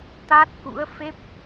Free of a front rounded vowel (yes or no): yes